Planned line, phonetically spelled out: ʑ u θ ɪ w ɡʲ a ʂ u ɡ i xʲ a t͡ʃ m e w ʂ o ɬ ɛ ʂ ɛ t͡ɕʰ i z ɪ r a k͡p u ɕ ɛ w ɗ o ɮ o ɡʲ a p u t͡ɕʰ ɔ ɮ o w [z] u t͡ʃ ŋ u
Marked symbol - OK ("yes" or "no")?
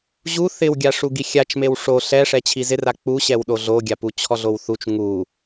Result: no